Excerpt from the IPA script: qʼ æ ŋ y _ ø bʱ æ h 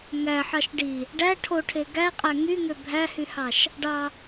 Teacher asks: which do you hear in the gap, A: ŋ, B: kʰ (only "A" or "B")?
A